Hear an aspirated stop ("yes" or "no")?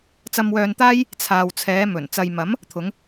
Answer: yes